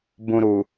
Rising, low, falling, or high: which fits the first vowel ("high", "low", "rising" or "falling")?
low